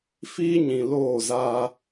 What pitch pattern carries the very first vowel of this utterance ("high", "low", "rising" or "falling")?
high